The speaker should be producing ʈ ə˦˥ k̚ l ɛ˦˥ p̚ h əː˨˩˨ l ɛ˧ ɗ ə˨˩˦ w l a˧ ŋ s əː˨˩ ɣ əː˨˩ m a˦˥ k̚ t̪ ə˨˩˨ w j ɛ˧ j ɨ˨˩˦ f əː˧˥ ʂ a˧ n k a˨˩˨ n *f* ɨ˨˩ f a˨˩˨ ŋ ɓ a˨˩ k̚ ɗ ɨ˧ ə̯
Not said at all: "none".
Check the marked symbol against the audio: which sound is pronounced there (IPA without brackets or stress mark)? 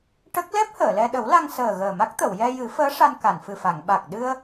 f